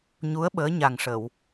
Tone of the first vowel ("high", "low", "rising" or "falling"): rising